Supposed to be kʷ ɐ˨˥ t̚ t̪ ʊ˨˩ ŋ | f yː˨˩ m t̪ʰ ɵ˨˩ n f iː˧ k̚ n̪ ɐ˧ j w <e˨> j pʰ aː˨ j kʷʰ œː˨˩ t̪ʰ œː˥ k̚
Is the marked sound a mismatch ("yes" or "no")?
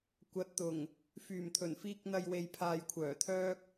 no